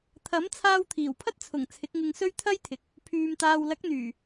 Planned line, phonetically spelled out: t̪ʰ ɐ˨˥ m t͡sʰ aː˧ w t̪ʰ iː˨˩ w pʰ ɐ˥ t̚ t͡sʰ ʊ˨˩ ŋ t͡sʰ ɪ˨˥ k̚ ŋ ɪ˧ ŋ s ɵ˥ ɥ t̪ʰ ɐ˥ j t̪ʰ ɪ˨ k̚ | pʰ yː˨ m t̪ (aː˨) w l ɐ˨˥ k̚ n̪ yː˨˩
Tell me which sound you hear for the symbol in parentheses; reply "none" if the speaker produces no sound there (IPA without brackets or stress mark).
aː˨